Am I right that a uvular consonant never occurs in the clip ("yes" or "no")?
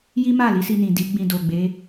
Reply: yes